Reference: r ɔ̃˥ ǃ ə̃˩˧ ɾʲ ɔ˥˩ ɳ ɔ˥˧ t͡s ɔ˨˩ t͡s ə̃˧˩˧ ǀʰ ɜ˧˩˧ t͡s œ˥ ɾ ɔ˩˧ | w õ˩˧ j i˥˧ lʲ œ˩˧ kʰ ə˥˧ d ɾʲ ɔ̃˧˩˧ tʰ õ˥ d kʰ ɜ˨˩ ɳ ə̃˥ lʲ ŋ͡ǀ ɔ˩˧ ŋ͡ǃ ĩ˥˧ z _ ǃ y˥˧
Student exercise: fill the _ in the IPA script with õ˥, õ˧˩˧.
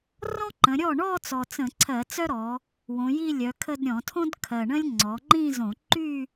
õ˧˩˧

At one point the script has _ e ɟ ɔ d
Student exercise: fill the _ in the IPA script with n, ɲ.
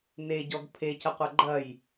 n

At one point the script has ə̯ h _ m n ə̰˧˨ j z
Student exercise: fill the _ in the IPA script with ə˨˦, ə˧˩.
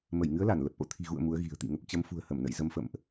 ə˧˩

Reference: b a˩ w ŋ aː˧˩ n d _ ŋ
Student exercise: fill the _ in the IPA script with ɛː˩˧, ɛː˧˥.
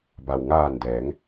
ɛː˩˧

